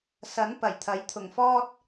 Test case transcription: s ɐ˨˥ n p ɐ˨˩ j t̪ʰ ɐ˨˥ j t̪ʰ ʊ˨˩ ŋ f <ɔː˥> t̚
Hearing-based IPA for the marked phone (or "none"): ɔː˥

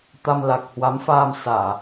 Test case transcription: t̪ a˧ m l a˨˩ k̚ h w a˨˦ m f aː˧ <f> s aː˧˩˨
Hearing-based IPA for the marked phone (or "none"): m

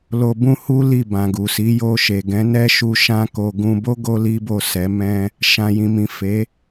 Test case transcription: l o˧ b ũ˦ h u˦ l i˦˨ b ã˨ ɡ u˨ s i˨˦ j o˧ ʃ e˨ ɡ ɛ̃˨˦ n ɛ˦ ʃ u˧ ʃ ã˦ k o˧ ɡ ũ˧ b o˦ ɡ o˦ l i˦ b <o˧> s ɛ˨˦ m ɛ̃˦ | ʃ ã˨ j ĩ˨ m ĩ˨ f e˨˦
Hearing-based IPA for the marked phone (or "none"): o˦˨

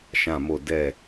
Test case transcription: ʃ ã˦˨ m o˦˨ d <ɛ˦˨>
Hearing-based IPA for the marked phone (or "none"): ɛ˦˨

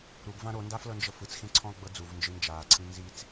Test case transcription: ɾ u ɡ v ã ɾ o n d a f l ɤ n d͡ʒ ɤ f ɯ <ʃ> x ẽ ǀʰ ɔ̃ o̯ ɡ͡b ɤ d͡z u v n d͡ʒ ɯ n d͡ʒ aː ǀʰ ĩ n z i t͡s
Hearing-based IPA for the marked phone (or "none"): t͡s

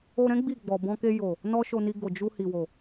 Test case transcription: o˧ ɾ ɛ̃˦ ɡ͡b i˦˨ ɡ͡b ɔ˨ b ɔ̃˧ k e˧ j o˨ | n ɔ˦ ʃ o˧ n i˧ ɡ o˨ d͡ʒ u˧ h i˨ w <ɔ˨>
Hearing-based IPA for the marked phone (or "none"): o˨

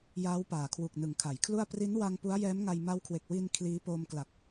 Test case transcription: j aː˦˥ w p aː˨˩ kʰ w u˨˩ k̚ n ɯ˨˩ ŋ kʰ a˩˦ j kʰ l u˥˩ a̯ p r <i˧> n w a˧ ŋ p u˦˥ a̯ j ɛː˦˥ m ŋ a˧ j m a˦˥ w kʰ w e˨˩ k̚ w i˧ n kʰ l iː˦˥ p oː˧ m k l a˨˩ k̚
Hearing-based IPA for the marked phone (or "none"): i˦˥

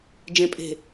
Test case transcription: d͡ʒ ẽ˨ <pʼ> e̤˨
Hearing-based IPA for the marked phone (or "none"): pʼ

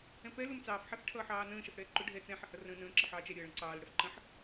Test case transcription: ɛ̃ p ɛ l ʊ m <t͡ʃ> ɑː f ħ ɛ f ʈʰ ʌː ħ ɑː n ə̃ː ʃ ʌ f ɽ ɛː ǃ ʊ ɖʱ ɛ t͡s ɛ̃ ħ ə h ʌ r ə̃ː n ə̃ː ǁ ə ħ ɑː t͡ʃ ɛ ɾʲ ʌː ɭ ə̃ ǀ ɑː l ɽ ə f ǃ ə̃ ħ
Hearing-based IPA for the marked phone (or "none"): t͡s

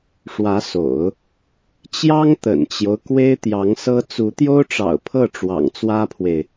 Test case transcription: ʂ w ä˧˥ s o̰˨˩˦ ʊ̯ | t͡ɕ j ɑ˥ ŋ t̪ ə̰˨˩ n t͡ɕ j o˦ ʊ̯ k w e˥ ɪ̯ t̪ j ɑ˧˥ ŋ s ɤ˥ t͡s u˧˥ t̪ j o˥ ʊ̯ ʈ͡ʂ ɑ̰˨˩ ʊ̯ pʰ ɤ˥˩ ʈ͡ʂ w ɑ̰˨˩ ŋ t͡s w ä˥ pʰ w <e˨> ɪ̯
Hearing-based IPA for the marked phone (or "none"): e˨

